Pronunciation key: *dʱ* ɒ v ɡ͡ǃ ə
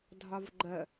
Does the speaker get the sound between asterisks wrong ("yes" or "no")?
no